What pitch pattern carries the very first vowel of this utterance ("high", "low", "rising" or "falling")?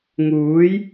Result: rising